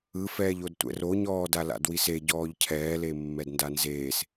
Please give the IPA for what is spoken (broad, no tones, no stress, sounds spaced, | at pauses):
ɯ f ɛː ʎ o d tʷ ɛ̰ r o ɲ ɔː d a l a̰ d w i s e ɟ ɔː ʎ cʰ ɛː l e mː ɛ d n d a n z eː s